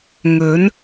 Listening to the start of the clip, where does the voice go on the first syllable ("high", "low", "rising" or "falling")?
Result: rising